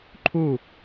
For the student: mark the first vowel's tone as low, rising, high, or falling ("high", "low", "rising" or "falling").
falling